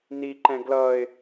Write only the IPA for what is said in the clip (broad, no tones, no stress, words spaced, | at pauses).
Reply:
niǃɛ̃ ɡlʌɪ̯